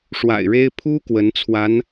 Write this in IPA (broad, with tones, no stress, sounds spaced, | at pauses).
ʂ w a̰˨˩ ɪ̯ ɻ e˥ ɪ̯ pʰ u˥ k w ə˧˥ n t͡sʰ w a˧˥ n